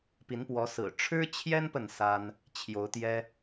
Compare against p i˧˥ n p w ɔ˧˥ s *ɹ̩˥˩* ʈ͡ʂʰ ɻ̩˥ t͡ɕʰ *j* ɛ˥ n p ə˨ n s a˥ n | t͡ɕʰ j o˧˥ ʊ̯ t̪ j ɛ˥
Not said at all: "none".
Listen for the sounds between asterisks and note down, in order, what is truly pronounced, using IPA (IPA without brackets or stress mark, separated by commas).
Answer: ɹ̩˨˩, j